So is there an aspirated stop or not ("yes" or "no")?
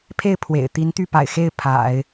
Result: yes